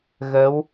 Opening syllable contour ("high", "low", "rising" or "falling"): rising